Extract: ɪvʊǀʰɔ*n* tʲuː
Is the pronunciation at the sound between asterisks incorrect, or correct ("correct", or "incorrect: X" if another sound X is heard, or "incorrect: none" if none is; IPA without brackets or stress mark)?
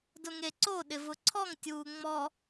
incorrect: ŋ